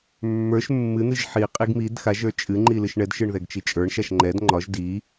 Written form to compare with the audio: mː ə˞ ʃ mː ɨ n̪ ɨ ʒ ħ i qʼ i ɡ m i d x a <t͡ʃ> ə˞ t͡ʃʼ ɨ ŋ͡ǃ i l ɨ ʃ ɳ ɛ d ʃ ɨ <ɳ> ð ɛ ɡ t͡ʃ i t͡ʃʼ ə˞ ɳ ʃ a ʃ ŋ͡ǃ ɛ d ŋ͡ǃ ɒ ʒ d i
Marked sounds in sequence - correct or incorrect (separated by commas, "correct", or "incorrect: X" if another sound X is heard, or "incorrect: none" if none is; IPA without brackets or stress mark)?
incorrect: ʒ, correct